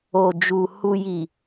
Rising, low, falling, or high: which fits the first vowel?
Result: low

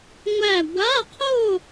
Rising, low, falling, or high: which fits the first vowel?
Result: falling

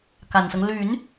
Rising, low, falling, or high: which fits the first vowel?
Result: low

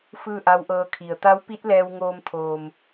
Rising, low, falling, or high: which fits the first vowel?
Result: falling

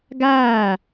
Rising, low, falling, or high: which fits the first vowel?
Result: falling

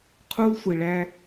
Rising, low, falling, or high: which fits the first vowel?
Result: high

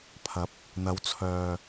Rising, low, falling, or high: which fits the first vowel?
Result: rising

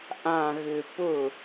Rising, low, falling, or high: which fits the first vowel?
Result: low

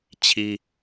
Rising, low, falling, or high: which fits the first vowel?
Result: high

